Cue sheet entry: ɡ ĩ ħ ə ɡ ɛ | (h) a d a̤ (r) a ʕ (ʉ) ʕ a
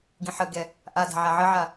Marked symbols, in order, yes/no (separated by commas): no, no, no